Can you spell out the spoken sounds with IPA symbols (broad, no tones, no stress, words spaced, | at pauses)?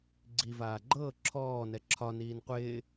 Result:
ɡ͡ǀivaː ɡ͡ǃɤː ǁʰɔːnɛ ǁʰɒniːn qʷɪː